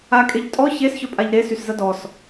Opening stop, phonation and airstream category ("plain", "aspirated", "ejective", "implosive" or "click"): ejective